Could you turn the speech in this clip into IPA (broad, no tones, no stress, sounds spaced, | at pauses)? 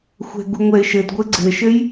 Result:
xʷ ɛ̤ ɡ u ŋʷ ɛ ɪ̯ ʃ ɘ d ɡʷ ɘ ɡ͡ǀ ɘ ʃ ɘ j